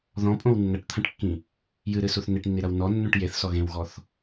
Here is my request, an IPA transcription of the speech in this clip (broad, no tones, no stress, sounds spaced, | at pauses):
ð ɔ̃ pʼ õ w nː ɐ ʈ t̪ʰ ɐ̃ ʈ kː ĩ | j ɨ ɾ ɨ s u θ n e ʈ nː i ɾ ɐ w n ɔ nː ũ ʈ j e θ s ɔ ɣ ẽ w ɣ ɔ θ